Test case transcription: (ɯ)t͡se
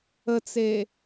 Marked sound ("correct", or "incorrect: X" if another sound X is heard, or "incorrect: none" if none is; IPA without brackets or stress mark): incorrect: ə